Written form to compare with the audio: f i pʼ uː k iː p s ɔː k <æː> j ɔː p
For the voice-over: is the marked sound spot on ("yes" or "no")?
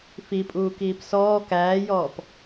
yes